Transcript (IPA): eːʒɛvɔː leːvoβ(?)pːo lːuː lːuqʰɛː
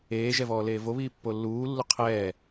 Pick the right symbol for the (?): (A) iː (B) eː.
A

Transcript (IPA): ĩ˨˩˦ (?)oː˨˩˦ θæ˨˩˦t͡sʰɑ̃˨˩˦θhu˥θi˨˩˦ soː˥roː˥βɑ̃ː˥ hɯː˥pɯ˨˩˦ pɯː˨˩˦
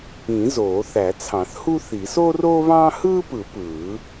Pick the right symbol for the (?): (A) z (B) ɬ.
A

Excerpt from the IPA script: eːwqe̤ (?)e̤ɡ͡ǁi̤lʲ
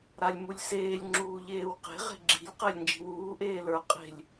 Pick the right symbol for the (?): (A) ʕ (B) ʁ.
B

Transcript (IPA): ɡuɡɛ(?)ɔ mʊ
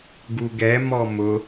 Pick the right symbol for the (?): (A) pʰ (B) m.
B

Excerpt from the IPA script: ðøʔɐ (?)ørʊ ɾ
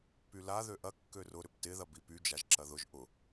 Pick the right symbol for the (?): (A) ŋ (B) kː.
B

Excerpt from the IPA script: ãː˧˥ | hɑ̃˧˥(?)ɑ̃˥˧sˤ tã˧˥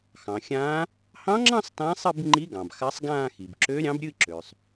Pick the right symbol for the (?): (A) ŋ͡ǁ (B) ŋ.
A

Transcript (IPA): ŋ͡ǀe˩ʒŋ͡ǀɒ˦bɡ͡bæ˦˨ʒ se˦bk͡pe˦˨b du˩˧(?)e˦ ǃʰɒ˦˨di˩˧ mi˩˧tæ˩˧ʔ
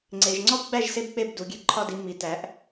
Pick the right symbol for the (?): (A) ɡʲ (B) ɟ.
A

